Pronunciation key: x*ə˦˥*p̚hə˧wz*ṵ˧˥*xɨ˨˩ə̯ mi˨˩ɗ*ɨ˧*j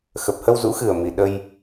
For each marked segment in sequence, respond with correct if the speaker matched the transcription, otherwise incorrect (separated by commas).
incorrect, correct, incorrect